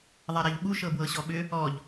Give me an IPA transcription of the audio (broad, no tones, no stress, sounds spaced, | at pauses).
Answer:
ðˤ a ɾ a ʎ ɓ u ʃ ɤ b w ɤ ɕ ɔ ɓ ʏ | ɔ ʎ